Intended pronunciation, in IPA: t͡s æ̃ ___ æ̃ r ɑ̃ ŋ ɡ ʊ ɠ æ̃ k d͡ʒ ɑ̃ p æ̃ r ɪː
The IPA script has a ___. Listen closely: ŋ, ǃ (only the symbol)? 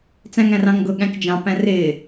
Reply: ŋ